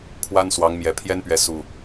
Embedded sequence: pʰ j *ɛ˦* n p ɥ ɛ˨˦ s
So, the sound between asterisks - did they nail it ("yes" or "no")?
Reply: yes